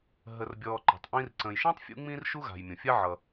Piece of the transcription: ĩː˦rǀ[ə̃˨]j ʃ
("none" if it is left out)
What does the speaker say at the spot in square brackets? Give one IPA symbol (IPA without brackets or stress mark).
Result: ə̃˨